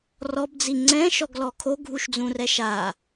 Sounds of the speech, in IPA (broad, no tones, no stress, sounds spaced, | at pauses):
r ɔ b d͡z i ŋ͡ǀ ɛ̃ ʃ ɔ ɡ l ɔ kʰ o ɡʱ u ʃ d͡z ũ r ɛ ʃ a